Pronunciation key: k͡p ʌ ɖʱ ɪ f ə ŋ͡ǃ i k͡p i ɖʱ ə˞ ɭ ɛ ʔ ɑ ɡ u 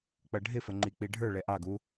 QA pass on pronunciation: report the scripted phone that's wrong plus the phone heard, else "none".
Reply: none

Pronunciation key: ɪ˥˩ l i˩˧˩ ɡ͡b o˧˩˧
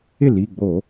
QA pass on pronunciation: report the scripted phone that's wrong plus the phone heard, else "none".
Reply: none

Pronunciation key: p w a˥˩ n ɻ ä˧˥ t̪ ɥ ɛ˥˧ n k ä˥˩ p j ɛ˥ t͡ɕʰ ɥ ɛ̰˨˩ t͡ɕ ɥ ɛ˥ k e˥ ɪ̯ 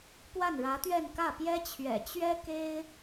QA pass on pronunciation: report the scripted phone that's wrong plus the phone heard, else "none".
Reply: none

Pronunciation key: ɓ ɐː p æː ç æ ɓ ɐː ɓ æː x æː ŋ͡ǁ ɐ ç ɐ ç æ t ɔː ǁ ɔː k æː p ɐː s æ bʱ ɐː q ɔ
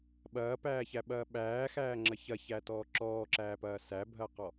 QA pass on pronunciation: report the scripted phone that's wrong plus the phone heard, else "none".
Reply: k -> ǁ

